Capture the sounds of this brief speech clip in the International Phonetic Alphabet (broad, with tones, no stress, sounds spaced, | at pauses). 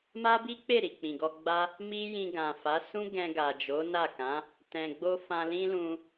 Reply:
m a˦ b i˦ k͡p e˦˨ ɾ i˨ k͡p ĩ˨ ɡ ɔ˧ ɡ͡b a˦ | m i˦ j ĩ˧ ɡ ã˨ f a˨˦ s ũ˦ ɡ ɛ̃˧ ɡ a˨ d͡ʒ o˨˦ n a˦˨ k ã˨˦ | t ɛ̃˨ ɡ͡b o˧ f ã˧ l ĩ˦ l ũ˧